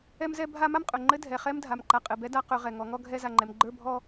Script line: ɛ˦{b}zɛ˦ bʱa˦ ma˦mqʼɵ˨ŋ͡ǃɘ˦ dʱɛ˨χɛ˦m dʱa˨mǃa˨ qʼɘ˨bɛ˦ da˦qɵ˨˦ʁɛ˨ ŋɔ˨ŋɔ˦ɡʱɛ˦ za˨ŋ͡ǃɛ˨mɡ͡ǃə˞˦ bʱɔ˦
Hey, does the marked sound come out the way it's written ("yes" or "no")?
no